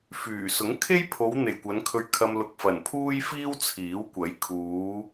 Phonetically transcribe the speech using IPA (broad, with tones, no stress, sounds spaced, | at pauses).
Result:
f yː˨˩ s ʊ˨˥ ŋ kʰ e˥ j pʰ o˨˧ w n̪ e˨ j kʷ ɐ˨˧ n kʰ ɵ˧ ɥ kʰ ɐ˧ m l ʊ˧ k̚ f ɐ˨˩ n pʰ uː˥ j f iː˥ w t͡sʰ iː˨˥ w kʷ ɐ˨˥ j kʰ uː˨˧